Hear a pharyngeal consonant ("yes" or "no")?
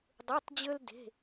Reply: no